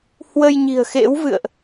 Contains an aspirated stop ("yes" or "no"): no